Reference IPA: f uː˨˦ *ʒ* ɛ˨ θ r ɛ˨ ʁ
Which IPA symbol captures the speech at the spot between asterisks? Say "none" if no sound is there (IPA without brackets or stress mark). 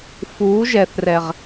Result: ʒ